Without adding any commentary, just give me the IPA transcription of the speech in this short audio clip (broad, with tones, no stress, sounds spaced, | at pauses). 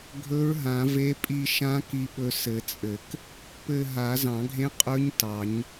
ɡʱ ɵ˧˥ ɹ ɦ ã˨˩˦ v e˧˥ pʼ i˦˨ ʃ ã˧˥ k i˦˨ ɓ ɵ˧˥ s ɘ˨˩˦ t͡sʼ ɘ˨˩˦ k | p ɘ˦˨ ɦ a˨˩˦ z ɑ̃˨˩˦ ɡʱ ẽ˧˥ qʼ ɵ˧˥ ɲ t ɑ˨˩˦ ɲ